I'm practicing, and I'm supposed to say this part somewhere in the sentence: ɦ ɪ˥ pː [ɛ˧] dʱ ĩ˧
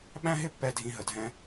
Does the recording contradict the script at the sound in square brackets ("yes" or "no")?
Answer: no